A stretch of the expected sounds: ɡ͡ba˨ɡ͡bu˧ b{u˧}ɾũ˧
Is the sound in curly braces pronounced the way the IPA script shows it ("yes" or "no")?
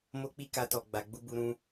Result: yes